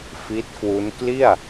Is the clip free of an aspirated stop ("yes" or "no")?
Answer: yes